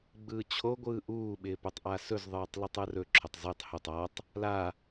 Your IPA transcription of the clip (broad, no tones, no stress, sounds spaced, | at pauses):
ɡ͡b ɯː t͡ɕʰ o ɡʷ ɯː ʔ uː ɓ ɪː p ɵ tˤ ʔ a s ɵ z ðˤ ɯː tˤ l u tˤ ɯ r ɵ ǁʰ ʊ tˤ z ɯ tˤ h ʊ tˤ a tˤ | l a